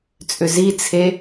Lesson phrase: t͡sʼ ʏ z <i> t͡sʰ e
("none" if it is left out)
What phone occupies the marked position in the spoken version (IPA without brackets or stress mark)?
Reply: i